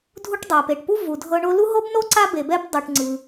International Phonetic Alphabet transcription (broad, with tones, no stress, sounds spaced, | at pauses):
dʱ u˦ ʈ dˤ a˩ p e˩ ʈ p u˦ v u˩ dʱ ɤ˨ ɳ o˦ l u˥ ɦ o˥ b n o˥ ǀ a˦ b e˨ b ɛ˦ b dˤ o˨ ʈ ŋ͡ǀ ɯ˩